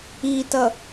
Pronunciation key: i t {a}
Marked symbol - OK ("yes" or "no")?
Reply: no